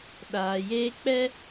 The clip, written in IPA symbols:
ɗ aː˨ j eː˦ k͡p ɛ˦

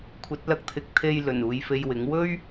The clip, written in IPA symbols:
kʷʰ ɐ˨˥ t̚ l ɐ˧ k̚ t̪ʰ ɪ˨˥ k̚ t̪ʰ e˧ j l ɵ˨˩ n uː˨ j f e˧ j w ɪ˨˥ ŋ w ɵ˥ ɥ

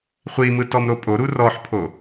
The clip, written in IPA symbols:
χʷ i m ɯ t ɔ m ɾ o pʼ o ɾ u r ɔ ħ pʰ o

